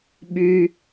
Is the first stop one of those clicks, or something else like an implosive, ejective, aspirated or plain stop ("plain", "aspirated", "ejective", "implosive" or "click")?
implosive